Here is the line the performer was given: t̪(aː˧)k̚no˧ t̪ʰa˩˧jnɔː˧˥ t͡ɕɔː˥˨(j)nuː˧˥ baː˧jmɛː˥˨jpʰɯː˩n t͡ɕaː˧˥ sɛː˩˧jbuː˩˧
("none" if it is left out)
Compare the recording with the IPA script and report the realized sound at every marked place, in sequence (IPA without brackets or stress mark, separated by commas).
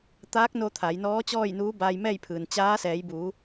aː˧˥, j